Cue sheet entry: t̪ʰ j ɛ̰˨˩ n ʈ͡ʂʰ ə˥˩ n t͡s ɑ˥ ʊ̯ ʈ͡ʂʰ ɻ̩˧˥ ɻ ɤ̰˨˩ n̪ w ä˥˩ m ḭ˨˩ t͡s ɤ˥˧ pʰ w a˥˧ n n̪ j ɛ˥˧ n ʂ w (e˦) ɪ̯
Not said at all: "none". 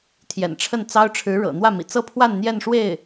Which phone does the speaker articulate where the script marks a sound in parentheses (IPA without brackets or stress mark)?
e˥˩